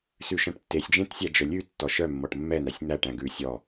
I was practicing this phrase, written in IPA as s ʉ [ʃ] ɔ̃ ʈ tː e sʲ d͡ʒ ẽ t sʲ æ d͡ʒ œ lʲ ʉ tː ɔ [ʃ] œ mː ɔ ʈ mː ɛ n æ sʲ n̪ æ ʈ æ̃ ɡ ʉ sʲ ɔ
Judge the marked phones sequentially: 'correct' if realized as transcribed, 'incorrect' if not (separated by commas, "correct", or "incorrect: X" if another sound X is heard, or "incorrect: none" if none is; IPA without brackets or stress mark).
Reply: correct, correct